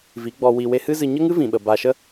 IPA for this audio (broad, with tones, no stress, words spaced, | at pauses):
vi˨˦ɡ͡bɔ˧ wi˧ we˧hɨ˦zɨ˧ ɲə˦ŋɨ˦vĩ˨ɓə˨ ba˧ʃə˦